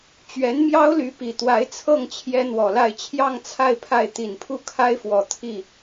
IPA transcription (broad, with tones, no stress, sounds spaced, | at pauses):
t͡ɕ ɥ ɛ˧˥ n m j ɑ˥ ʊ̯ l y˧˥ p i˨˩ t̪ w a˧˥ ɪ̯ t͡sʰ ɤ˥˩ ŋ t͡ɕʰ j ɛ˥ n̪ w ɔ˨˩ l a˥˧ ɪ̯ t͡ɕʰ j ɑ˥˧ ŋ t͡sʰ a˥˧ ɪ̯ pʰ a˥˩ ɪ̯ t̪ i˨˩ n pʰ u˥˩ kʰ a˥ ɪ̯ f w ɔ˨˩ t̪ʰ i˥˩